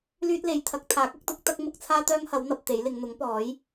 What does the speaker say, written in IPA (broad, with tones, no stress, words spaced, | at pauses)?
lyː˥t̚le˨˥jt̪ʰɐ˨˥k̚ t̪ʰaː˨˥k̚ɐ˨˥k̚ t̪ʊ˥k̚ t̪ɐ˥k̚ mʊ˨˥k̚t͡sʰaː˥t̪œː˥ŋhɐ˨˥w n̪ɐ˧p̚t̪e˨˥jlɪ˨˧ŋ n̪ʊ˨˥ŋpɔː˨˥j